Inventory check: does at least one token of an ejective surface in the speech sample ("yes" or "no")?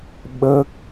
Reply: no